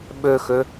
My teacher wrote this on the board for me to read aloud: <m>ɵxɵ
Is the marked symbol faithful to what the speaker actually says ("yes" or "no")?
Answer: no